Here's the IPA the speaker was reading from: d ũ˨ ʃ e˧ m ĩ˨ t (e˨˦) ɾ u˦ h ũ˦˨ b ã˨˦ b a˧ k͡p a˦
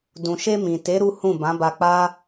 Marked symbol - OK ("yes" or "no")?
yes